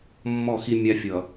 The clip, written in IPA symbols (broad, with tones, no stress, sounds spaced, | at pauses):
mː ɔ˦˨ x i˦ mʲ a˦ fʲ ʌ˨